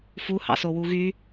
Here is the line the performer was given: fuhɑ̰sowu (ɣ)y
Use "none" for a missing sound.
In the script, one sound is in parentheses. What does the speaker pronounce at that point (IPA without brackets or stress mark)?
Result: ɣ